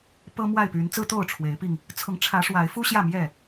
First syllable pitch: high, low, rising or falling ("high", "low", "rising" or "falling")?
high